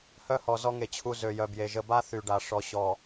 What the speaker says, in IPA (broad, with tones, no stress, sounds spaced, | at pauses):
h œ˦ h ɔ˨ z ɔ˦ ŋ e˨ t͡ɕʰ u˨ z ø˨ j œ˨ b j e˨ ʒ ə˨ b a˦ θ y˨ ɖ a˨ ʂ ɔ˨ ɕ ɔ˨